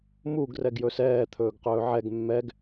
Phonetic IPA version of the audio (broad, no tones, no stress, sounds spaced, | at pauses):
m u ɡ r ɛ ɡ j ɵ s ɛː t̪ʰ ɵː ɡ q ɵː ʕ ɛ ɡ mː ɛ ɡ